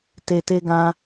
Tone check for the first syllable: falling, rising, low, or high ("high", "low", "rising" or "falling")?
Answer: low